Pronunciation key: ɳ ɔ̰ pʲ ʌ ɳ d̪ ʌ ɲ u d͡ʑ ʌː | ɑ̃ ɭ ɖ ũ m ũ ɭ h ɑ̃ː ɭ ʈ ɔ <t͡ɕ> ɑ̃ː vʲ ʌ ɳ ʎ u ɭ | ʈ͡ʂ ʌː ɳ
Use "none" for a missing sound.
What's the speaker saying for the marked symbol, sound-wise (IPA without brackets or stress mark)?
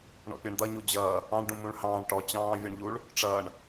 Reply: t͡ɕ